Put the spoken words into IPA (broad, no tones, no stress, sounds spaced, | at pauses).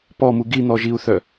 p ɔ m u ɡ i n̪ ɔ ʒ i u̯ θ œ